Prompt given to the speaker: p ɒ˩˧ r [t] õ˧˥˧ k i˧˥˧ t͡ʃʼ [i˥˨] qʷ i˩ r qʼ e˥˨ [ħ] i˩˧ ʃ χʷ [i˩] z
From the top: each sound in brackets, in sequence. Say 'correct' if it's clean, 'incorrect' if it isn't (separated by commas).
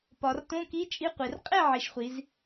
correct, incorrect, incorrect, incorrect